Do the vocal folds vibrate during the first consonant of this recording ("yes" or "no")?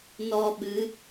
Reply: yes